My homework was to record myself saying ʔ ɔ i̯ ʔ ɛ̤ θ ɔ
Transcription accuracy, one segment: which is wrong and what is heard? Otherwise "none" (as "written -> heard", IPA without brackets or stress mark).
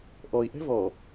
θ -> v